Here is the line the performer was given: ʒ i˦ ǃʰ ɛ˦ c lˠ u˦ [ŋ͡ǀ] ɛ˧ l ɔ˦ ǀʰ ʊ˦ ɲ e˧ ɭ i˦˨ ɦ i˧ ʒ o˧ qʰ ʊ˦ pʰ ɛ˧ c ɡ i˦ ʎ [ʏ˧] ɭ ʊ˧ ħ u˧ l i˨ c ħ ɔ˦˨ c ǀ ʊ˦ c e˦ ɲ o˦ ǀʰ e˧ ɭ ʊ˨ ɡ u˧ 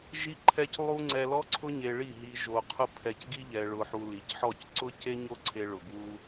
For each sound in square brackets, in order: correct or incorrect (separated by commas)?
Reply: correct, incorrect